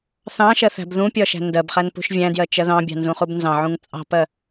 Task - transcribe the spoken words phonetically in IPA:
θ ɑ̃ ʃ ɜ θ æ̤ b ð ũ pʲ ɒ ʃ æ̤ n d ɜ b χ æ n p ṳ ʃ vʲ æ̃ d j ɜ t͡ʃ ɜ ð ɑ̃ bʲ ɑ̤ n z ũ χ u b n z ɑ̃ ʕ ũ ŋ t͡sʼ ɑ̤ p ɜ

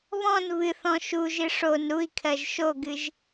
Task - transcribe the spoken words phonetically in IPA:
β ɔ̃ n β ɨ θ ɔ̃ ʃ u ʒ ɨ ʂ o n ɾ u i̯ kʰ ɜ ʒ ʃ o ɡ ɨ ʒ

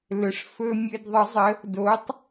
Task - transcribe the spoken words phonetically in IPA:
l ɵ˨˩˦ ʂ f ɵ˧ mʲ ɘ˧ d ðˤ ə˨˥ zˤ ə˨˥ | d o˨˥ tˤ

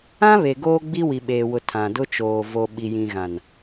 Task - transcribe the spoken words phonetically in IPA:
ã˦ β e˨ ɡ oː˦ ɡ͡b i˦ w i˨ ɓ eː˨ w ʊ˨ tʰ ã˨ d ʊ˦ t͡ʃ oː˨ v o˨ ɓ i˨ j ĩ˨ ɣ ã˨ n

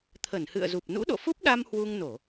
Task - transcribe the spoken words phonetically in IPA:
t̪ʰ ə˧˩ n h ɨ̰˧˨ ə̯ z u˨˩ p̚ n ṵ˧˥ ɗ o̰˧˨ f u˦˥ p̚ ɗ a˧ m h w u˧ ŋ n o˧˩˨

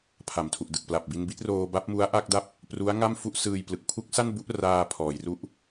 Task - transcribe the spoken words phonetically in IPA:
pʰ a˩˦ m tʰ u˨˩ ʔ d ɯ˨˩ k̚ p l a˨˩ p̚ b i˧ n b i˦˥ t̚ r oː˧ b a˦˥ p̚ m u˦˥ a̯ ʔ a˥˩ k̚ d a˥˩ p̚ | p r u˦˥ a̯ ŋ a˥˩ m f u˦˥ ʔ s ɯː˧ j p l ɯ˨˩ k̚ pʰ u˦˥ k̚ s a˥˩ n b u˦˥ ʔ r aː˧ pʰ ɔː˩˦ j r u˦˥ ʔ

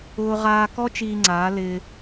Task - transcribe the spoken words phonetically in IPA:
ʊː˧ ʁ aː˧ k ɔ˦ t͡ʃ iː˧ ŋ͡ǀ aː˨˦ l ɪː˧

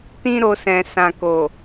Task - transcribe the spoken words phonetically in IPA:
t ĩ˦ ɾ o˧ s ɛ̃˨ s ã˨ k o˨

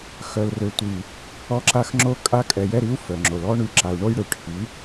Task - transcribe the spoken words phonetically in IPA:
x œ˨ l r ø˨ tʷ i˨ | ɔ˧ ǁ a˧ x ŋ͡ǁ o˧ kʼ a˧ kʼ ɛ˨ j ɛ˧ ɾ i˨˦ u̯ f œ˨ ŋ͡ǁ o˨ l ɔ˦ ɳ y˧ ǁ a˨ u̯ ɳ o˧ j ɽ ø˨ ʈʰ i˨˦

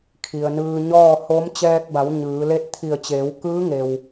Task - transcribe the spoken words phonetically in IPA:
kʰ i˩ ə̯ n ɯː˧ ɲ ɔː˥˨ h o˧˥ m t͡ɕ ɛː˧ k̚ b a˩˧ w ɲ ɯː˩˧ l e˥˨ t̚ t̪ʰ i˧˩ ə̯ t͡ɕ eː˩˧ w k ɯː˧˥ ŋ e˩ w

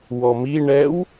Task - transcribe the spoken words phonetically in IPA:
w ɔ m i ɳ ɛ w

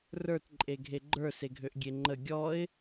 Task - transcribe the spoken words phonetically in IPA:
r ə˞ t ǃʼ e ɡʱ e ɡ͡ǃ ə˞ s e ɡʱ ø ʔ ɡʲ e ŋ͡ǃ ə ɡʲ ɔ ɪ̯

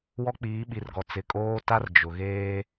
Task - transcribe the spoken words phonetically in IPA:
w ɔ˦ k͡p iː˨˦ ɓ i˨ r ɡ ɔ˨ t͡s ɪ˨ kʼ oː˦ t a˦ r d͡ʒ ʊ˨ ɣ eː˦

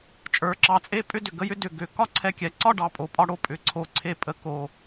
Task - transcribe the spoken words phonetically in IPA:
t͡ʃʼ ə˞˨˥ ǁ ɑ˨˥ t͡sʼ e˥ pʼ ʏ˥˧ d ʏ˨˩ ɡ ə˥˧ j ʏ˥ d ʏ˨˩ ɡ ʏ˩˧ k ɒ˥˧ ǀʰ ɛ˧ kʲ ɛ˩˧ ǀ ɒ˥˧ ɖ ɑ˨˩ pʼ o˩˧ pʼ ɒ˧ ɽ o˥ pʼ ʏ˩˧ ǀʰ o˨˩ ǀʰ e˧ pʼ ə˩˧ k o˨˩

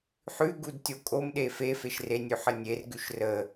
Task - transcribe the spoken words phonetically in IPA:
ħ ʉ ɡ u d tʲ o kʼ o m ɗ e f e f e ʃ r e nʲ ʉ ħ ə nʲ e r ɡ ʉ ʃ r ə

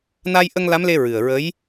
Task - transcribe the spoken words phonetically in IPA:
n a˧ j ʔ ə˧ ŋ l a˧˥ m l e˧ ɹ ɨ˨˩ ə̯ ɹ ə˧˥ j

